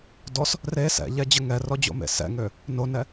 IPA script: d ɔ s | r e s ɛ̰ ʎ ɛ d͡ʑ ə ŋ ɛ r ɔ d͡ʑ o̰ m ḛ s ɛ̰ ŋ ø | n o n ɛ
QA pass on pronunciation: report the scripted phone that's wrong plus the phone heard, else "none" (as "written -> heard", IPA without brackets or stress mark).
none